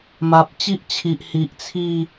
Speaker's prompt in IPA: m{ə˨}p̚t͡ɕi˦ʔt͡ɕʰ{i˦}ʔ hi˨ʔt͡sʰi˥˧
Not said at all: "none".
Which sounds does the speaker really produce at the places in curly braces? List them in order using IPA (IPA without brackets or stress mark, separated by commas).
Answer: a˨, i˨